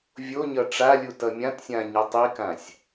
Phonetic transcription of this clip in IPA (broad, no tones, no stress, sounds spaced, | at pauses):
vʲ o ɲ ʌ ʈ͡ʂ a lʲ u t ʌ mʲ ã t sʲ ã ɲ ʌ tˤ i k ã sʲ